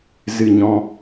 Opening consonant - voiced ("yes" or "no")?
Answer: yes